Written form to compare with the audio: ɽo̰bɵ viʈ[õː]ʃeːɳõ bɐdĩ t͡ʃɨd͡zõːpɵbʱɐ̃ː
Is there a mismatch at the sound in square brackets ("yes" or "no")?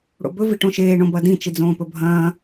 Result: yes